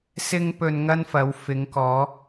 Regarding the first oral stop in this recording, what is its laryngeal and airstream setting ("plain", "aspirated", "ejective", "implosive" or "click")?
plain